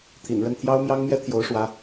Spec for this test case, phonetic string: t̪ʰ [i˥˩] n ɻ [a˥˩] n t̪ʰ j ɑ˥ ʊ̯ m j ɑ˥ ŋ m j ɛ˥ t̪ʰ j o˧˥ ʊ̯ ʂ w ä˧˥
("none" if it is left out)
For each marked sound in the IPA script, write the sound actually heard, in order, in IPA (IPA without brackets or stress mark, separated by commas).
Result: ḭ˨˩, ə˥˩